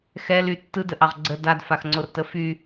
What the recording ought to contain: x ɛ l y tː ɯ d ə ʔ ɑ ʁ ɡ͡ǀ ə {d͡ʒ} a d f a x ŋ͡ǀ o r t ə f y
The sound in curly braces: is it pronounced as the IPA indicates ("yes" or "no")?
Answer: no